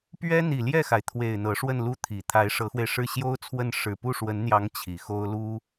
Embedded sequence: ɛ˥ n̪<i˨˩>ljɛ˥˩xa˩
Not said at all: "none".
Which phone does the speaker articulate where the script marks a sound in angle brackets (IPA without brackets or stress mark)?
i˨˩